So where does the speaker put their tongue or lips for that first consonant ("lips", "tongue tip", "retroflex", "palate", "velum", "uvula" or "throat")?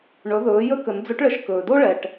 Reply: retroflex